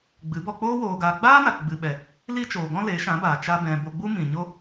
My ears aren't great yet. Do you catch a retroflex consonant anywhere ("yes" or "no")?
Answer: no